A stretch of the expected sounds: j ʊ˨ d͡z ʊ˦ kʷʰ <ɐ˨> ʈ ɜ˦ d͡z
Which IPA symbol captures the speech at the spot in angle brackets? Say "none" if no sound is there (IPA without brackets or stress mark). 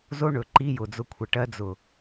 ɐ˨